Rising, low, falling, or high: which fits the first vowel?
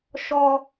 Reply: high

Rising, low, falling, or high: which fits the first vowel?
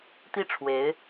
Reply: falling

